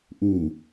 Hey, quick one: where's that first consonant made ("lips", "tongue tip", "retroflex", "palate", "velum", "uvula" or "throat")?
throat